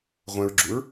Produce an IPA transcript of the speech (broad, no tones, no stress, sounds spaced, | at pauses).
ʁʷ ɛ̃ ɹ ɡ͡ǁ u ɹ